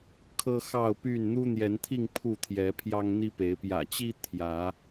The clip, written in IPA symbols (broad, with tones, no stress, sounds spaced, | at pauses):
kʰ ɤ˦ x ɑ˥˨ ʊ̯ p y˥˨ n n̪ u˦ n̪ j ɛ˨˦ n t̪ʰ i˥˨ ŋ pʰ u˥˨ t̪ʰ j ɛ˨˦ pʰ j ɑ˦ ŋ n̪ i˦ p e˨˦ ɪ̯ p j ä̰˨˩ t͡ɕ i˦ t̪ʰ j ä˨˦